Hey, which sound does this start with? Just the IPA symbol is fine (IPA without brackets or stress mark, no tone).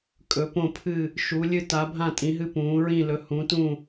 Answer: kʼ